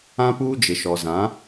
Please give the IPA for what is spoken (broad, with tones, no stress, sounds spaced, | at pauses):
ã˦ p uː˦ d͡ʒ ɪ˨ ʃ ɔ˨ z ã˨˦